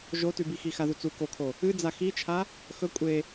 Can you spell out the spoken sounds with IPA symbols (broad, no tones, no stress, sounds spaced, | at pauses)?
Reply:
ʒ o t ʉ b i x i x a ð u t͡s u k o kʰ o | ɨ d͡z a x i t͡ʃʰ a | x ɵ kʷʼ e